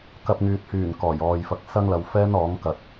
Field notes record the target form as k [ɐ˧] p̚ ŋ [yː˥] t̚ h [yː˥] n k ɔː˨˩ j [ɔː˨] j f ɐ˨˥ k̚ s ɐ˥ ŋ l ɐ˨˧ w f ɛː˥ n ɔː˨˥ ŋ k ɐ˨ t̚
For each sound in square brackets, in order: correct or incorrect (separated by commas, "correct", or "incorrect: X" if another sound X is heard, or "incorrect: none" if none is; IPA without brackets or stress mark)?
correct, incorrect: yː˨, incorrect: yː˨˩, correct